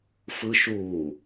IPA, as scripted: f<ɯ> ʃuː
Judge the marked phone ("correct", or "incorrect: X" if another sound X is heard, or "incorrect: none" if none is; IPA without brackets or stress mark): correct